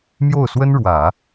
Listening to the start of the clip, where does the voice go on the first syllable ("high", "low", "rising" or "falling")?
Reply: falling